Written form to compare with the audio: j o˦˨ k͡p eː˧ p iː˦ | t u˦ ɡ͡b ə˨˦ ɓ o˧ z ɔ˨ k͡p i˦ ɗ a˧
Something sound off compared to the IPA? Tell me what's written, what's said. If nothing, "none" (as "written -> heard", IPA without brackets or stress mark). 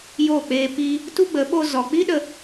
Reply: a˧ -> ə˧